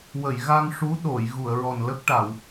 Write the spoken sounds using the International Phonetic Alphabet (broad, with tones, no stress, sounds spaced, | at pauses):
w ə˨˩˨ j ɣ a˧ ŋ ʂ u˧˥ ɗ o˨˩˨ j ɣ u˨˩˨ ə̯ ɹ ɔ˨˩ n l ə˦˥ k̚ ʈ a˨˩˨ w